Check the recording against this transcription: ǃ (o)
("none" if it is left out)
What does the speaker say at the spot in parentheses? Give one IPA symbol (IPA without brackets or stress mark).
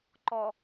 ɔ